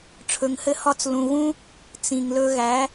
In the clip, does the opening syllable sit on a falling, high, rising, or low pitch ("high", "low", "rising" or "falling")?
low